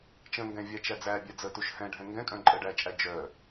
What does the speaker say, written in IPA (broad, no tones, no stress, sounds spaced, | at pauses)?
t͡ʃ ə̃ ŋ ɡ ɛ̃ vʲ ɛ t͡ʃ æ d͡z æ bʲ ɛ d͡z ə t u ʃ h ɛ̃ ɖʱ ɛ̃ ŋ ɡ ɛ̃ kʼ œ̃ ǃʼ ɛ ɖ æ t͡ʃʼ æ d͡ʒ œ